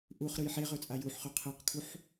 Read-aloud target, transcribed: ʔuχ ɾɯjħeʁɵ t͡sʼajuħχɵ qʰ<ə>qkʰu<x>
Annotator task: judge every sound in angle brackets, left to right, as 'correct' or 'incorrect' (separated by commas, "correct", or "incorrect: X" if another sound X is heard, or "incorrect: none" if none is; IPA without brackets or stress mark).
incorrect: ɯ, incorrect: ħ